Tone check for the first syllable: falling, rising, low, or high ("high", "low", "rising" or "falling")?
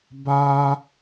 high